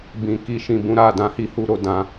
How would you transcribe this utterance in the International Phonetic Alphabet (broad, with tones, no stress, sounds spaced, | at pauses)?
b ĩ˨ k i˨ ʃ ĩ˨ b ũ˨˦ ɾ a˦˨ d ã˧ h i˦ h u˧ ɾ o˧ d ã˦